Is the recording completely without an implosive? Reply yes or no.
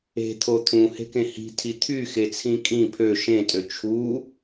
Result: yes